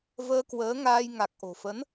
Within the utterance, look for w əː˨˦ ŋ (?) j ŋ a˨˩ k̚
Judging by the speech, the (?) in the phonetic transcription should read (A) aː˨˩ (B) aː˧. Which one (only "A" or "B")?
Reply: B